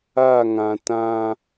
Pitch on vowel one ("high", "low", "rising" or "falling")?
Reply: falling